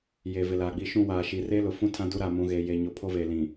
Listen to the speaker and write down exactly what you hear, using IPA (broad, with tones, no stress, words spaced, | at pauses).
je˨vɪ˨laː˨ɡ͡bi˦ ʃũ˦˨waː˨ʃi˨ re˦lʊ˨fũ˦ tʰã˦du˦ ɾaː˨mũ˨ ɣe˨ je˨ɲo˨ pʰo˦ve˨ lĩ˨